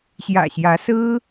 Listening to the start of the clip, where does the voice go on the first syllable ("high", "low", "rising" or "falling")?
low